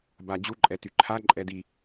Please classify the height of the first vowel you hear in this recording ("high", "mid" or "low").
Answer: low